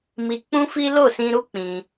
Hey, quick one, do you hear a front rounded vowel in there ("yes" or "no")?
no